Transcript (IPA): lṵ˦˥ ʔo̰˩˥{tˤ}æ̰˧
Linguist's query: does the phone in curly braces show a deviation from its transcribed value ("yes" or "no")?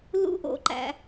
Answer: yes